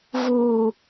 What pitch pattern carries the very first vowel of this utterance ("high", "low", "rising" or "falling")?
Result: low